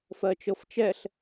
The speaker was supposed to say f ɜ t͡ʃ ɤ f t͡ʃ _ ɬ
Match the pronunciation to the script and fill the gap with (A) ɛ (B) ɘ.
A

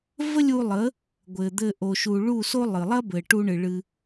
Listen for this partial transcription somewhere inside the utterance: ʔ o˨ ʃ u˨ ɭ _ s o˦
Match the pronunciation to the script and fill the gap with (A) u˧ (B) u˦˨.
B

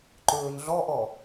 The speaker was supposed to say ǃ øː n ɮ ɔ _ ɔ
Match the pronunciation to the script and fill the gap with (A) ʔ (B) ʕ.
A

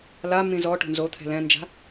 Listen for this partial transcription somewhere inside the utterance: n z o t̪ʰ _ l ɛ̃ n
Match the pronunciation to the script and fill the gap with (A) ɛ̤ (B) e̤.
A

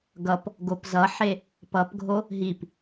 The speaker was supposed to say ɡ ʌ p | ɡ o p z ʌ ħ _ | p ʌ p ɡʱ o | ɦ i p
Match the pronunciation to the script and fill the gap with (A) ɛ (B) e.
B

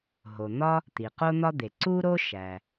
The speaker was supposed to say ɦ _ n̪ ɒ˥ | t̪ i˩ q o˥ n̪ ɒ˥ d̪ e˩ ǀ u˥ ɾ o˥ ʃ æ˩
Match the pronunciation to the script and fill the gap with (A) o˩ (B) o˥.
A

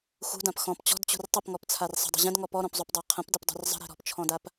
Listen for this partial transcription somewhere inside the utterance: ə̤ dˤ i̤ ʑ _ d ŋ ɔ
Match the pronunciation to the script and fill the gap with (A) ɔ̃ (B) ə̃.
B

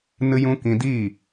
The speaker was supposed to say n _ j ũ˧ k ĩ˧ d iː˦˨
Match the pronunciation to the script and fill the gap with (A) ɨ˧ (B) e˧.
A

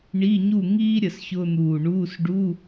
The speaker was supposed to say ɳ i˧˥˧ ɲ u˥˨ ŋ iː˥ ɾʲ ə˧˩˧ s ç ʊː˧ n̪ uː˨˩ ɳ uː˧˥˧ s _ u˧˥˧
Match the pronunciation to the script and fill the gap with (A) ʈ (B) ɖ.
B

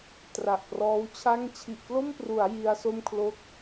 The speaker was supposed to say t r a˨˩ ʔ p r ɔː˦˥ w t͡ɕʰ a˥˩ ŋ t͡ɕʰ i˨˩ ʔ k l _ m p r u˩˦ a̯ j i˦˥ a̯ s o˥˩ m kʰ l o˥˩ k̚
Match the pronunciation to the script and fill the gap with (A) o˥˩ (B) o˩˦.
A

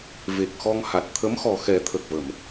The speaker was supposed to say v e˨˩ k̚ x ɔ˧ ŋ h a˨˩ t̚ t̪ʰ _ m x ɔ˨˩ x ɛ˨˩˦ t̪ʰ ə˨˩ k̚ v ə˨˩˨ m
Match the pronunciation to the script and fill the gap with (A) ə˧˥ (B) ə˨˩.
A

